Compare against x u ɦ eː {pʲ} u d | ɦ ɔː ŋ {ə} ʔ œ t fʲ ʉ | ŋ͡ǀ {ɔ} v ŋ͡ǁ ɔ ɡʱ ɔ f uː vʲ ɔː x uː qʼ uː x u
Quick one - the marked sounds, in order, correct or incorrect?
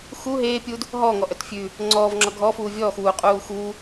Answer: correct, incorrect: ɔ, incorrect: ɔː

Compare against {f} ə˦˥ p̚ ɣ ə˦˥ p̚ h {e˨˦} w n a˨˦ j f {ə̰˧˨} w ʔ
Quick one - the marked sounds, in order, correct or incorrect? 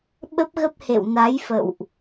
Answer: incorrect: ɓ, incorrect: ḛ˧˨, correct

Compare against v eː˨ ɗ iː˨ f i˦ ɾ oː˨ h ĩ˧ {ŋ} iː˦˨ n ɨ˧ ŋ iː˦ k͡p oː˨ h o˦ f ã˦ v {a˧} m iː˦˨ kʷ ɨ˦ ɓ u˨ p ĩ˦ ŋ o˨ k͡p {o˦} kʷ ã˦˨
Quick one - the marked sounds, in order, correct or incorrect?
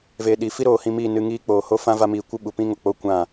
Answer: incorrect: m, incorrect: a˦, correct

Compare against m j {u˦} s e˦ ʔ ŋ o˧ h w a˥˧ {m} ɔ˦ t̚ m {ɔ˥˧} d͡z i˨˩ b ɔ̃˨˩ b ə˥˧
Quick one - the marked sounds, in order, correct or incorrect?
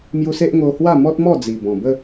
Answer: incorrect: u˧, correct, correct

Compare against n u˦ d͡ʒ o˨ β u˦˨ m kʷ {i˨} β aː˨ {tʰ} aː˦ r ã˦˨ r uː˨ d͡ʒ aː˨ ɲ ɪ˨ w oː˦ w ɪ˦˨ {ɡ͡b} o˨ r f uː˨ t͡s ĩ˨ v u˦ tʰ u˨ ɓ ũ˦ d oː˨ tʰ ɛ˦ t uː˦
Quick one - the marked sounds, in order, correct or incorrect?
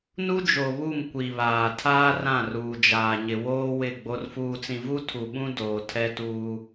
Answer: correct, correct, correct

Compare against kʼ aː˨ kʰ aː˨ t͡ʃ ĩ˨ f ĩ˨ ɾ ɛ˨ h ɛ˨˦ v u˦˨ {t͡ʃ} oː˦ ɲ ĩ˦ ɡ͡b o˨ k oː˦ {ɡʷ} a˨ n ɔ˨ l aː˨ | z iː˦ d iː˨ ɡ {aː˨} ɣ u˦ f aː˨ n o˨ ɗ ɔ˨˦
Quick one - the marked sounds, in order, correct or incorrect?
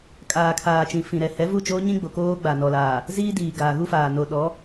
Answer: correct, incorrect: ɡ͡b, correct

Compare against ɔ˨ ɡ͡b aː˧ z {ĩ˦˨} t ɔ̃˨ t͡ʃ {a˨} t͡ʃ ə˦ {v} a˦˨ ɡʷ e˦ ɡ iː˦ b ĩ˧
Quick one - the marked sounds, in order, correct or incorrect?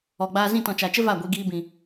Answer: correct, correct, correct

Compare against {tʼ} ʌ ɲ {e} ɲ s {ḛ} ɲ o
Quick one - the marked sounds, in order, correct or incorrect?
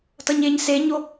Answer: incorrect: t, correct, incorrect: e

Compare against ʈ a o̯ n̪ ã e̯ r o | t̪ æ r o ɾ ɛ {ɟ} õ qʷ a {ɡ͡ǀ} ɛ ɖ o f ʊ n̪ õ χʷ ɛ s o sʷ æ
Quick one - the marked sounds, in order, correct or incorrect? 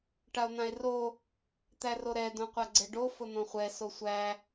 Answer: incorrect: d, correct

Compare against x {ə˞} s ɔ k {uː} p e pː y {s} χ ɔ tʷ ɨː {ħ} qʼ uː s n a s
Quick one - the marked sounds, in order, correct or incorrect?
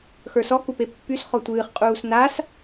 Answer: correct, incorrect: u, correct, incorrect: χ

